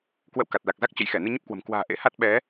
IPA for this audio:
k w ə̰˧˨ w k a˨˩ t̚ l a˨˩ k̚ z a˦˥ k̚ t͡ɕ ə̰˧˨ j x ɛ˧˩ n ɨ˧ ɲ ə˦˥ p̚ k w ə̤˨˩ m k w a̤ː˨˩ ʔ ḛ˧˥ h a˦˥ t̚ ɓ ɛ˨˦

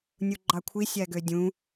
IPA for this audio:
nʲ u ɡ͡ǃ ɑ kʷʰ i sʲ æ ɡ ø dʲ ũ

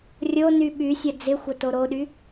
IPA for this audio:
rʲ o n y ɓ y sʲ ɐ d͡z ɪ xʷ ɐ t o ɾ o ɗ y

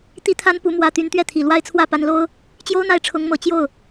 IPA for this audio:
t̪ i˥ t̪ʰ a˥ n p u˧˥ m w ä˥˩ t̪ y˧˥ n t̪ ɥ ɛ˥˩ t̪ʰ i˨˩ l w a˥ ɪ̯ t͡sʰ w ä˥˩ p a˧˥ n l o˥ ʊ̯ | t͡ɕ j o˥ ʊ̯ n̪ a˥˩ ɪ̯ ʈ͡ʂʰ ʊ˧˥ ŋ m ɤ˨˩ t͡ɕ j o˥˩ ʊ̯

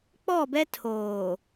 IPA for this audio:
k͡p ɔ˦˨ b ɛ˦ tʰ oː˨

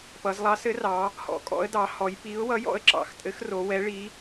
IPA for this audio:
p ʌ˩˧ z lˠ ɑ˨˥ s ɘ˨˥ r ɑ˩˧ | h ɔ̰˩˧ kʼ ɔ̰˨˥ ə̯ d ɑ˩˧ h ɔ˩˧ j p i˨˥ ʊ̯ w ʌ˨˥ j ɔ̰˨˥ ə̯ ǁ ɑ̰˩˧ x tʼ ɘ˨˥ x r o˩˧ w ɛ˨˥ ɭ i˨˥

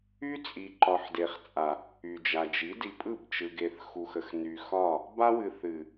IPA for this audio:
y˦ t͡sʼ i˨ ǃ ɒ˨ ħ d e˨ χ t͡sʼ a˨ | y˨ d͡ʒ a˨ d͡ʒ i˨˦ d i˨ pʼ ɯ˦˨ b t͡ʃ ɯ˨ ɡ e˨ θ x u˨ x ə˨ x n y˨ x ɒ˦˨ | b a˦ w ɨ˨ θ ɨ˨

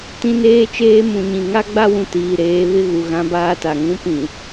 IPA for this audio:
t ĩ˦ n eː˦ t͡ʃ eː˦ m ũ˨ ɲ ĩ˨ ŋ a˦ ɡ͡b a˦ w ũ˨ t iː˨ ɾ eː˨˦ β ɪ˦ ɣ u˨ ɣ ã˦ b aː˦ t a˨ ŋ ũ˦ p ĩ˨

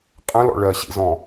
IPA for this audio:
qʼ ə̃ l ɔ̰ ɭ ɜ ɕ ḭ z ɔ̃

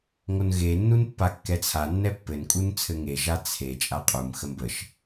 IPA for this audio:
ŋ o n ɣ e nː u n pː a kː ɛ t͡sʰ a nː ɛ pː ɘ n kʼ u n t͡sʰ ɘ ŋ e ʒ a t͡sʰ e t͡ʃʼ a qʼ u m x ə m b ə ʃ

